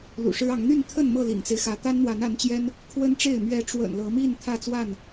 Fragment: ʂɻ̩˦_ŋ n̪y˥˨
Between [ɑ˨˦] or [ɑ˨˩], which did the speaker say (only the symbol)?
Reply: ɑ˨˦